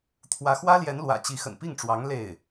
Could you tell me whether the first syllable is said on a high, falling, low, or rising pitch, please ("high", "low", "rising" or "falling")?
rising